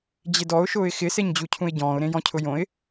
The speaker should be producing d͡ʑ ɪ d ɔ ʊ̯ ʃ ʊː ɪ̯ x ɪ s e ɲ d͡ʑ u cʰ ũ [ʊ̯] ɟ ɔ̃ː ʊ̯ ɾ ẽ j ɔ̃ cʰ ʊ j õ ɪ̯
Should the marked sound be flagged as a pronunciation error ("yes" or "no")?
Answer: yes